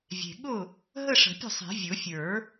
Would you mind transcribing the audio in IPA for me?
vʲe̤˨˩ ɠʊ˥˩ | ɦə˥˧ʂə̤˨˩˦pʲə̤˥˩sˤe̤˨˩˦ vʲʊ˨˩˦fʲə˞˨˩˦

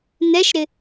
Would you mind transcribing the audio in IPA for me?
nɛʃɾɪ

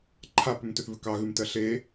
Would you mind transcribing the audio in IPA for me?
ǃʰapʏmtʏθvʏ kɑɣʉmtɜ ɬe

